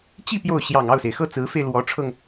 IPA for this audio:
t͡ɕ i˥˧ p j o˥˩ ʊ̯ ɕ j ɑ˨˩ ŋ ɑ˥˩ ʊ̯ s e˩ ɪ̯ x ɤ˥˩ t͡s ɹ̩˧˥ f e˧ ɪ̯ l w ɔ˧˥ ʈ͡ʂʰ ɤ˧ ŋ

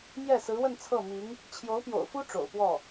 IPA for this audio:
m j ɛ˥˩ s ɹ̩˧˥ w ə˥˧ n t͡sʰ ɤ˥˩ m i˧˥ ŋ | t͡ɕʰ j o˧˥ ʊ̯ p j o̰˨˩ ʊ̯ f u˥ ʈ͡ʂ o̰˨˩ ʊ̯ p w ɔ˥˩

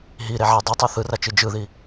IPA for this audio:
ɦ i ɾ e ʕ ɛ dˤ ɛ tˤ ɛ θ ɯ r a t͡ʃ ɯ d͡ʒ ɯ ð i

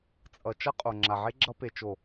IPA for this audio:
t͡sʼ ʌ˨ t͡ʃ ʌ˦ qʼ o˨ ŋ͡ǁ a˨ ʕ e˦ ɡ͡ǁ ʌ˦ p e˨ t͡ʃ o˨

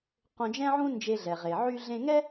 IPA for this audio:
q õ˧ d͡ʒ ɛ̃˥ ʕ ũ˥ n d͡ʒ e˧ ɮ ɛ˩ ʁ e˩ ʕ y˧ ɮ ẽ˧ ŋ ɛ˥

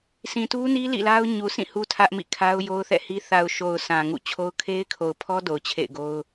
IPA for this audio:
sʰ ĩ˨ t u˦ n i˦ l ḭ˦˨ l a˦ ʊ̯ ɲ u˨ sʰ ĩ˦˨ h u˦ tʰ ä˦ ʔ m ḭ˦˨ kʰ a˦ ʊ̯ j o˦ ʊ̯ θ ɛ̰˦˨ h i˦ θ a˨ ʊ̯ ʃ o˨ ʊ̯ s ã˨ ŋ ṵ˦˨ t͡ɕʰ o˦ ʊ̯ kʰ e˦ ɪ̯ kʰ o˨ ʊ̯ pʰ ɔ˦ d o˨ ʊ̯ t͡ɕʰ ḛ˦˨ ɪ̯ ɡ o˦ ʊ̯

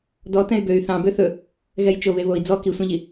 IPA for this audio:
d ɔ t ɛ̃ y̯ b ø y̯ θ ɑ̃ b ø θ ɵ | ɣ ɛ j t͡ʃ o β e β o i̯ d͡z ɔ k i sʷ ɛ̃ ʎ i

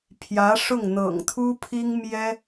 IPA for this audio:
pʰ j ä˧˥ ʂ ʊ˥˩ ŋ n̪ ɤ̰˨˩ ŋ t̪ʰ u˥ pʰ i˥ ŋ m j ɛ˥

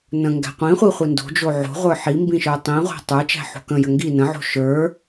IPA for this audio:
n ə̃ ŋ ɡ æ̤ qʷ ĩ χʷ i χʷ i n d o̤ d͡ʒ o ʕ o̤ ʁʷ ə˞ ħ i m b ĩ ʃ ə˞ tˤ ĩ ʁʷ æ̤ tˤ ə˞ t͡ʃ æ̤ ħ o̤ k ə̃ j ə ŋ ɡ i n ə̃ ʕ o̤ ʃ ə˞

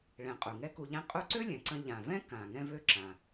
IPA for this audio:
ɭ ɛ̃˩ qʼ u˩ ŋ ɛ˥ k u˧ ʎ ɛ̃˥ qʼ u˥ ǀ ø˥ lʲ ɛ̃˩ ǀ ə̃˧ ʎ ã˩ v ɛ̃˥ k ã˩ ŋ ɛ̃˥ v ø˥ ǁ ã˩

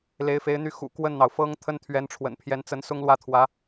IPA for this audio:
l e˧˥ ɪ̯ f e˧˥ ɪ̯ n̪ y˥˩ x ṵ˨˩ k w ə˥˩ n n̪ ɑ˩ ʊ̯ f ɤ˥ ŋ t̪ʰ ə˥ n t̪ʰ ɥ ɛ˧˥ n ʈ͡ʂʰ w ə̰˨˩ n pʰ j ɛ˧˥ n t͡s ə˧˥ n s ʊ˥ ŋ l w ä˥˩ t̪ʰ w ä˧˥

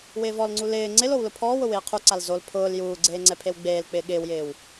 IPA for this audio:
w ɪː v ɔ l ŋ͡ǀ u l ɪː ŋ͡ǀ ɪ l o w l ʊ pʰ ɔː w ʊ w ɪː qʰ u ǀ a l z o l pʰ ʊː l j uː ɡ͡ǀ eː ŋ͡ǀ ɛ pʰ e w ɡ͡b eː l k͡p ɪː ɠ ɪː w j ɪː w

